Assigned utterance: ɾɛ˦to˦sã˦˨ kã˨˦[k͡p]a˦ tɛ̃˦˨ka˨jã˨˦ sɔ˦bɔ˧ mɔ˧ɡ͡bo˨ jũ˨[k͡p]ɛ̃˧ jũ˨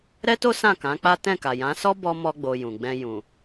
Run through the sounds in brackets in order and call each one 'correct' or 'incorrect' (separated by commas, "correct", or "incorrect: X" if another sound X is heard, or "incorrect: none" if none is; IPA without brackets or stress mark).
correct, incorrect: ɡ͡b